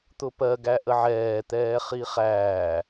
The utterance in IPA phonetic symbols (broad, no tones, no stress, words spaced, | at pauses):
t̪ʊpɜ ɡæʔəʕɛːt̪ɛː χiχæː